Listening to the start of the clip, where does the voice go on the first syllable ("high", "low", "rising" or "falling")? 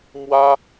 high